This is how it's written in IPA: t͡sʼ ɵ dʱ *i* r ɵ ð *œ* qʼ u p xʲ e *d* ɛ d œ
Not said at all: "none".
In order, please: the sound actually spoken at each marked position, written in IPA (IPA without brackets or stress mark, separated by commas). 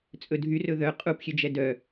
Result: y, œ, d͡ʒ